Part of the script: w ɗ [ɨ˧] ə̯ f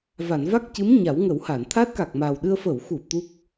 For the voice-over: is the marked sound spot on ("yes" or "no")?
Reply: yes